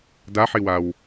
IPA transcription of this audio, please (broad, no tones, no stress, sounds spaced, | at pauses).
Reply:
d a ħ i w a w